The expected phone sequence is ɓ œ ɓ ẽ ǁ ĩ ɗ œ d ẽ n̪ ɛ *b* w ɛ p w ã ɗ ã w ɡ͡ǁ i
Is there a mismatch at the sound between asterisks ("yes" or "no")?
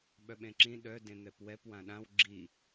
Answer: yes